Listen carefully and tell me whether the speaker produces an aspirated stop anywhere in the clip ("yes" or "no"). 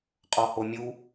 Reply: no